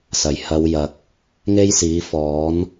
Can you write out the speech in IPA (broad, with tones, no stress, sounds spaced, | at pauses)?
s ɐ˨˩ j h ɐ˨˧ w j ɐ˨ k̚ | ŋ e˥ j s iː˨˥ f ɔː˨˥ n